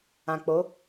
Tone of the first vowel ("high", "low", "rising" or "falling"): low